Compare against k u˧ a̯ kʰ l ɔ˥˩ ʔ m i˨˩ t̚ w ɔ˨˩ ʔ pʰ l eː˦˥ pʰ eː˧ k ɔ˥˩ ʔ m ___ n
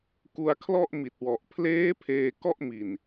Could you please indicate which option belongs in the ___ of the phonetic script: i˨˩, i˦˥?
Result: i˨˩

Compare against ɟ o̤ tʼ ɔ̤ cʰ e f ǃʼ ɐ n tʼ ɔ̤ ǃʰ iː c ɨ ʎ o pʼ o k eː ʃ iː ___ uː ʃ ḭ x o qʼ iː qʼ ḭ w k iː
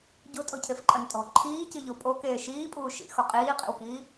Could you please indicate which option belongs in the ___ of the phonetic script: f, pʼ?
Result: pʼ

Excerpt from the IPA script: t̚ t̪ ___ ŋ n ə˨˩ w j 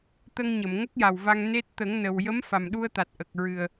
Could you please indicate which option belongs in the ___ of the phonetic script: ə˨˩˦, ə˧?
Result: ə˨˩˦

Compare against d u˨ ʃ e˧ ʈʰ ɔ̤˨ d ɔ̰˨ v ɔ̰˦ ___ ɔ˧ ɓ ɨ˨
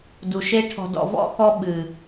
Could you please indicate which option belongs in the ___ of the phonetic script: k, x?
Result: x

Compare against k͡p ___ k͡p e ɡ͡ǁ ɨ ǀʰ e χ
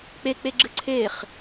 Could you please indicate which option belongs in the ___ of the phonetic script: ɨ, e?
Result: e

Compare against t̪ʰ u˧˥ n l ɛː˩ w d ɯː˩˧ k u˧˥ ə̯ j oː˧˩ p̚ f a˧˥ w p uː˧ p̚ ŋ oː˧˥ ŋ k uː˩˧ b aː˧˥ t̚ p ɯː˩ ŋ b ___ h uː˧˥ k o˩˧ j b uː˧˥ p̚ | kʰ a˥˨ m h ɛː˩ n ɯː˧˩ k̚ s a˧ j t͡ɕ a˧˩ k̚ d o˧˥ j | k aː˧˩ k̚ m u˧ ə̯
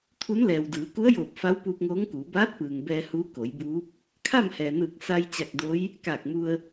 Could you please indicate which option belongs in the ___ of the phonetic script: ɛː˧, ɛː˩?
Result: ɛː˧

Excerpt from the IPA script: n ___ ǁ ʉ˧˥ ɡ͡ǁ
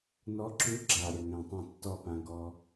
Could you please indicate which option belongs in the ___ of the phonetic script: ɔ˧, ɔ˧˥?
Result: ɔ˧˥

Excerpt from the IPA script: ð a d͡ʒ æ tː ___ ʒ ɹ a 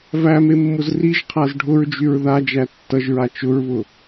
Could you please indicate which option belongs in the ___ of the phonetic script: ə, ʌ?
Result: ʌ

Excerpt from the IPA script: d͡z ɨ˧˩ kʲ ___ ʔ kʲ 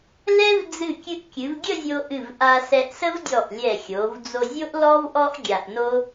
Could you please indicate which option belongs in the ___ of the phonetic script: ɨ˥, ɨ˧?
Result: ɨ˧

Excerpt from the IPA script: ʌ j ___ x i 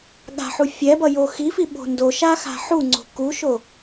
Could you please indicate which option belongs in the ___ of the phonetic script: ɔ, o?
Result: o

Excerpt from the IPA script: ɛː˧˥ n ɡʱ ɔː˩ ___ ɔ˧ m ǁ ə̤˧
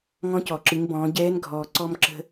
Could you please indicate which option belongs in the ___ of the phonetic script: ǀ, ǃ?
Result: ǀ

